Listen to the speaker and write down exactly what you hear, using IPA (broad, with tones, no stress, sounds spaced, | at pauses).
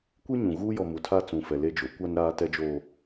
kʷ i˦ ɲ ũ˨ ɣ uː˦ j ɔ˨ m u˨ tʰ a˦ t͡s ũ˨ f ɛ˨ l e˦ d͡ʒ o˨˦ kʷ a˦ n ɾ aː˦ t ɛ˦ d͡ʒ oː˦